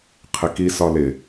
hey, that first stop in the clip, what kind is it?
aspirated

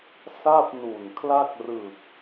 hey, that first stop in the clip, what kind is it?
plain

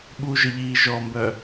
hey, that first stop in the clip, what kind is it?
implosive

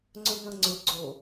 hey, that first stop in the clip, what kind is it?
click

